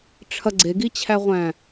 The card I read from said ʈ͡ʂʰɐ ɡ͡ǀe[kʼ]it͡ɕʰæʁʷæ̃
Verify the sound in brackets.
incorrect: ɡ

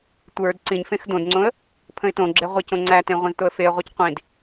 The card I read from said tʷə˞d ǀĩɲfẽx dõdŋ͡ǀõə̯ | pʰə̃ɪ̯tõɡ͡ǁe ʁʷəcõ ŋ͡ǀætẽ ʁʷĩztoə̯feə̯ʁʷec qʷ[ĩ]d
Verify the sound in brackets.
correct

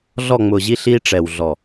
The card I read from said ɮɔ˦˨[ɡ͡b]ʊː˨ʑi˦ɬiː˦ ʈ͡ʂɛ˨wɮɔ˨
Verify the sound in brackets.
incorrect: ŋ͡m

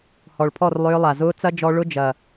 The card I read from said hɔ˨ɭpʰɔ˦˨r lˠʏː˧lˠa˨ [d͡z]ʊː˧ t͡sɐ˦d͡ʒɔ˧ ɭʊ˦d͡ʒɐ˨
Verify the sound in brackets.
incorrect: z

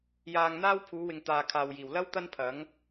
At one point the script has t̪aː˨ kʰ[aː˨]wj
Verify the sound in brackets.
correct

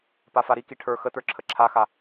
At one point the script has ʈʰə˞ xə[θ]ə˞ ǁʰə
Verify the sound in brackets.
incorrect: t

